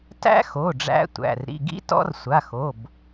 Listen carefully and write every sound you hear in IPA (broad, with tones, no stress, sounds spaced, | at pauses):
t æ̰˦˥ x o˩˧˩ ɖ͡ʐ æ̰˦˥ tʷ æ̰˩˧˩ r ɾ ḭ˩˧˩ ɡ ḭ˦˥ t ɔ̰˦˥ r sʷ a˩˧˩ x o˩˧˩ b